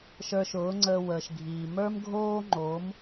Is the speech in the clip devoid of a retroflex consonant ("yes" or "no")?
yes